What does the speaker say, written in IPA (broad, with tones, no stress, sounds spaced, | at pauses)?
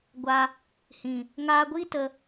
ɡʷ a˧ | h ĩ˨ | ŋ aː˧ ɡʷ iː˦ t ə˧